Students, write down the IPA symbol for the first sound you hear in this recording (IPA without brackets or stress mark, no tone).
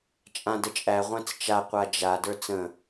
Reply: t͡ʃʼ